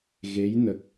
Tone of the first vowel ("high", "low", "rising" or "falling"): rising